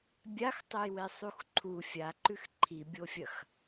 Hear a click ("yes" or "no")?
yes